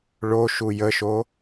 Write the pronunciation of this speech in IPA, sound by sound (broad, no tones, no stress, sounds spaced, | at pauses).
ɭ o ʃ u j ə ʃ o